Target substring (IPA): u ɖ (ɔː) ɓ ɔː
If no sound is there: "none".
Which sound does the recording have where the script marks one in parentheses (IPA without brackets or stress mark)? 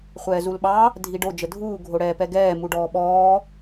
ɔː